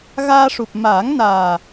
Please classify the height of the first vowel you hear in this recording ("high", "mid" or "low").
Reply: low